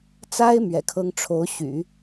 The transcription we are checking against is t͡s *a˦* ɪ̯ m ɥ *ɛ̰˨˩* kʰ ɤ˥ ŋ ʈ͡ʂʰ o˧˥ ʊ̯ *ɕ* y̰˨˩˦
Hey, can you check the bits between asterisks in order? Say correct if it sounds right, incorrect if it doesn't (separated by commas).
incorrect, correct, correct